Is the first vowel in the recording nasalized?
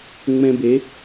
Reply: yes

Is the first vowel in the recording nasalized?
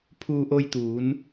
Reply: no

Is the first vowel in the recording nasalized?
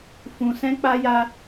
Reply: yes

